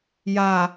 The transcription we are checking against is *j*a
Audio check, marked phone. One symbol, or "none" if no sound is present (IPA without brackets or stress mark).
j